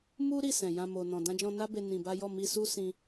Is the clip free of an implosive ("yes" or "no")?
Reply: yes